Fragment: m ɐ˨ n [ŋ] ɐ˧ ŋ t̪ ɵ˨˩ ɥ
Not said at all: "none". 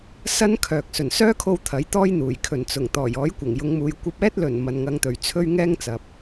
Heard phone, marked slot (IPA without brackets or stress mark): ŋ